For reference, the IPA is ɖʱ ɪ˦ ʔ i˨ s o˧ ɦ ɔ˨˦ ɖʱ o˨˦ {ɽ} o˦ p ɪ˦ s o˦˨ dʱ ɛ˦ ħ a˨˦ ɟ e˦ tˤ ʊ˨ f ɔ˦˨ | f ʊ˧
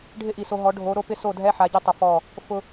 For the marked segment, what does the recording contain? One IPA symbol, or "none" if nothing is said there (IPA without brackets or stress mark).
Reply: ɾ